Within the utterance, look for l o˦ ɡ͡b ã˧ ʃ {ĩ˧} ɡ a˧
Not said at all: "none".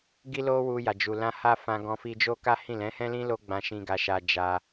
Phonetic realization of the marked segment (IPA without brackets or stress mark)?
ĩ˧